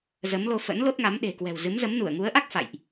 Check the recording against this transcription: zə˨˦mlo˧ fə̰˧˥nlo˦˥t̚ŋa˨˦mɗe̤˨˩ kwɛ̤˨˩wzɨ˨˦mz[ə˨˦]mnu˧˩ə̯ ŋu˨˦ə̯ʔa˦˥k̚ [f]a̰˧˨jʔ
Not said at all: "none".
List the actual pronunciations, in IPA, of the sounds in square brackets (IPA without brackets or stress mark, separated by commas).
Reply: ə˨˦, f